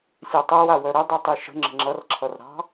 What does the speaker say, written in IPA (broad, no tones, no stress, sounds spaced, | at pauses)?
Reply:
sʲ a tˤ æ w a w œ ɾ ə dˤ i tˤ i ʃ ə̤ ŋ͡ǁ ə̤ ŋ͡ǁ ʌ r ǁʰ ʌ r ɾ ɑ̤